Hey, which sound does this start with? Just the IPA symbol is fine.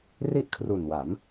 r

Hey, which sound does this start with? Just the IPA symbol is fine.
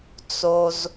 t͡s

